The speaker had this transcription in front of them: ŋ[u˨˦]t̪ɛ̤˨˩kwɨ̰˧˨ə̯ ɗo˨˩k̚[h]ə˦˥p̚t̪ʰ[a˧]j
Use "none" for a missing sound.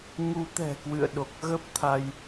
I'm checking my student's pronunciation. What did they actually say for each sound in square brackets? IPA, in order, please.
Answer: u˨˦, ɣ, a˧

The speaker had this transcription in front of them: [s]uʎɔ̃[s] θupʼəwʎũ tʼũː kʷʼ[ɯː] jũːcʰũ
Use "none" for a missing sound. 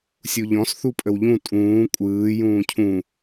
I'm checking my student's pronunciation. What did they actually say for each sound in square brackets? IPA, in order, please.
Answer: sʲ, s, ɯː

